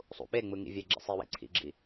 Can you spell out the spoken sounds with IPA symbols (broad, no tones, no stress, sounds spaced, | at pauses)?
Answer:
sˤ ṵ ɓ e ŋ͡m ɯ ŋ ḭ vʲ ɛ ɡ͡ǁ ḭ sˤ i w ḛ ǀʰ ḭ ɡ͡ǁ i